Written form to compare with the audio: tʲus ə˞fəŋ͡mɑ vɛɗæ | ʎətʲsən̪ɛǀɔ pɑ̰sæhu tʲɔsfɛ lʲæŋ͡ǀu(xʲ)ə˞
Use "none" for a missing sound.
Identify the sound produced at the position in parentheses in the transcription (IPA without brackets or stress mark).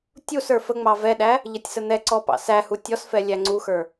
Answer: x